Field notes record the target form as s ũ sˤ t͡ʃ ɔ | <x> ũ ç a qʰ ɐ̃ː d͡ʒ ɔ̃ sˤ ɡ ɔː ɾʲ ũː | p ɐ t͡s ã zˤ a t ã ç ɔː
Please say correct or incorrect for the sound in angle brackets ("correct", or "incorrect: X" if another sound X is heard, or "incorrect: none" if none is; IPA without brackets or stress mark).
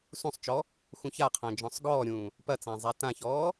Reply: correct